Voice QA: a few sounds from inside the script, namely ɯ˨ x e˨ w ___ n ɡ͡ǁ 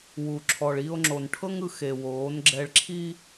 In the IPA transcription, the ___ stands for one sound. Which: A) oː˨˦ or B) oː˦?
A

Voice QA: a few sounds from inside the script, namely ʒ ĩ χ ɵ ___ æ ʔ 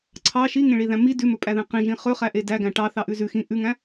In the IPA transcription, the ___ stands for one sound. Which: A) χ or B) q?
A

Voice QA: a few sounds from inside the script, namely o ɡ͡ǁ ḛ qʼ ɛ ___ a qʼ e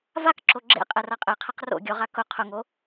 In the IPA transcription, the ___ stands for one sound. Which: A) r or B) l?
A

